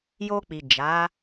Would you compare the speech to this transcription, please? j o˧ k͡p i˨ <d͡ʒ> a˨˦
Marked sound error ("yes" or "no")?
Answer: no